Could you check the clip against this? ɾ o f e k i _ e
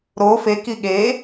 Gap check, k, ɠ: ɠ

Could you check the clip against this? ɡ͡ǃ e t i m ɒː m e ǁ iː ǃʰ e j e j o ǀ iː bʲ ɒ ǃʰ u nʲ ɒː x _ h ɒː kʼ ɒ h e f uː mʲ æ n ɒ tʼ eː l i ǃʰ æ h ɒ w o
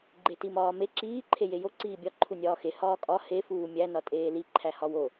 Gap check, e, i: e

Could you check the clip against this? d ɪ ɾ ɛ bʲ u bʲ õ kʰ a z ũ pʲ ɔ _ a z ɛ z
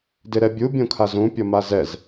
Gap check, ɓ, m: m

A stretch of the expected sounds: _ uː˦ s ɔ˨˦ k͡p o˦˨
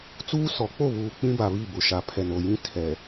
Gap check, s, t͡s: t͡s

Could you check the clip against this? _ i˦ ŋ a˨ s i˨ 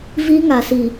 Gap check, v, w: v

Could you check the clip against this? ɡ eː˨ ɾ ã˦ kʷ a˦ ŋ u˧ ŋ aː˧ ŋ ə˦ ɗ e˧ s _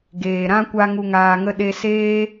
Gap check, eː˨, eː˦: eː˦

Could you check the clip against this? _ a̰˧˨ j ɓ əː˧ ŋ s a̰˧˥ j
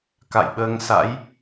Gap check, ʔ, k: k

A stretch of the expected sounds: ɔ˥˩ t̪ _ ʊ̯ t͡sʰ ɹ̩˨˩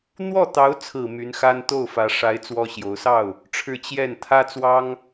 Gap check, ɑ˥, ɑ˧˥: ɑ˧˥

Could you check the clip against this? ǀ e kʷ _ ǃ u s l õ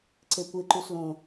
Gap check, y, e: e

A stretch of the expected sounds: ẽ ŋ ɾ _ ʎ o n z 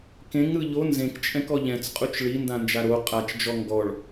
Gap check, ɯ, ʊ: ɯ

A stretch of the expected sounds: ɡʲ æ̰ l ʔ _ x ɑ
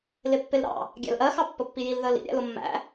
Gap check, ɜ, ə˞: ɜ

